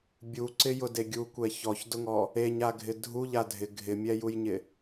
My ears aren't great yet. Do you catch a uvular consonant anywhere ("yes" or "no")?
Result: no